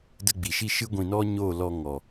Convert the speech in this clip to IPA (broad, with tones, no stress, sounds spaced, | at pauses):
d ə˧ ɡ͡b i˨ ʃ i˧ ʃ ɨ˦ ɡʷ ĩ˧ n ɔ˦ ɲ oː˦˨ l ɔ˧ ŋ ɔ˨